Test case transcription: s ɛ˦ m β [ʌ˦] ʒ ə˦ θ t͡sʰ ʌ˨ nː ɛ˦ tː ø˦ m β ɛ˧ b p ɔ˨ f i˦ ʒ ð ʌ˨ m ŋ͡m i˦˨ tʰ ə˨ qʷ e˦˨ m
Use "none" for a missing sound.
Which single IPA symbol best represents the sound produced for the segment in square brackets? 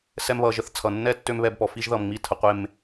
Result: ʌ˧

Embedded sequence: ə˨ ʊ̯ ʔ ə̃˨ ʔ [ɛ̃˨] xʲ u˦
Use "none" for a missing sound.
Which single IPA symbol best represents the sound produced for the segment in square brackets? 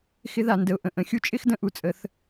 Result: ə̃˨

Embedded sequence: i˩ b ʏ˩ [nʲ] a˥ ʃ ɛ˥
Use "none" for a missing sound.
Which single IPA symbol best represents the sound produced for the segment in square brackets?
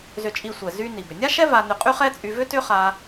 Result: nʲ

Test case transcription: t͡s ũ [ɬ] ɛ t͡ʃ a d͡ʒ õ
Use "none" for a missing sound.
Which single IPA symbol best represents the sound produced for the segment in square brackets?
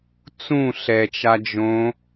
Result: ɬ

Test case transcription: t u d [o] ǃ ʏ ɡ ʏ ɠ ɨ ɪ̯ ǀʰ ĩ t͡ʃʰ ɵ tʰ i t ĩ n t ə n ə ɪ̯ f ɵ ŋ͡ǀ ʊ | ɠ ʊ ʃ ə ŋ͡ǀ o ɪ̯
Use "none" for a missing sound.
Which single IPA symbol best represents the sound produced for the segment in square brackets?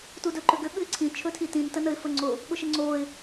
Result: ɵ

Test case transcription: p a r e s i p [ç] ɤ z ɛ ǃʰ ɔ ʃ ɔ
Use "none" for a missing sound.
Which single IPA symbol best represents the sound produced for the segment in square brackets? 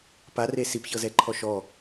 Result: ç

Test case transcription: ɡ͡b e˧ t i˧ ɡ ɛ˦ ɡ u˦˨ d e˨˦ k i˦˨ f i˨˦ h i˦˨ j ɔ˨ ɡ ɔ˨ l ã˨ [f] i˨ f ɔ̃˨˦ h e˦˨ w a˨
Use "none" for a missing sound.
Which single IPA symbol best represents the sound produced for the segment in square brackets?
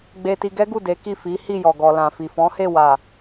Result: f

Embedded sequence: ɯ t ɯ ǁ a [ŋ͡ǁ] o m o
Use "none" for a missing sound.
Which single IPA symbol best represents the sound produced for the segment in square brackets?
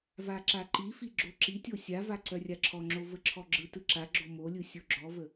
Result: ɡ͡ǁ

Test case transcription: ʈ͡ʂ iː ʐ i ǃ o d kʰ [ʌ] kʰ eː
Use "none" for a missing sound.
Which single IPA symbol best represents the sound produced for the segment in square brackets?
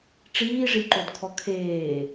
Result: ɔ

